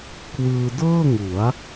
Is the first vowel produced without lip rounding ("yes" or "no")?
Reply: yes